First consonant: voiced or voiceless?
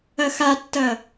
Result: voiceless